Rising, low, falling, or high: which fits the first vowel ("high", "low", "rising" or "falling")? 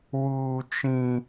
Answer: high